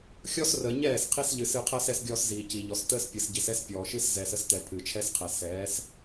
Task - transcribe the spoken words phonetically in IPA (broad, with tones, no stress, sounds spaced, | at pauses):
xʲ ɔ˦ s r əː˨ ɲ ɛː˦˨ s qʰ i˦ s ʎ ɨ˨ s ɨ˦˨ qʰ əː˦ s ɛ˦ s ɡʲ ɔː˦ s z iː˨ c i˨ ʎ ɔ˨ s t əː˦ s pʲ ɨ˨ s ɟ i˨ s ɛ˦ s pʲ ɔː˨ ʃ ɨ˦ s z ɛː˨ s ə˦ s t ɛ˨ pʰ ɨ˨ t͡ʃʰ ɛ˦ s qʰ ɛ˨ s ɛː˨˦ s